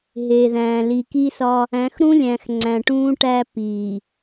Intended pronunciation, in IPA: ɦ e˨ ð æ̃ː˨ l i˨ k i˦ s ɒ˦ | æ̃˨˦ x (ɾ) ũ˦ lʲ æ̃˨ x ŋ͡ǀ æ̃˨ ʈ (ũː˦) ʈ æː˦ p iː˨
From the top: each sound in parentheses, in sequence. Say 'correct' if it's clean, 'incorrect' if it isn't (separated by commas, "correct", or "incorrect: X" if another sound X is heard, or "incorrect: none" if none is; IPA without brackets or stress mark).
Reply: correct, correct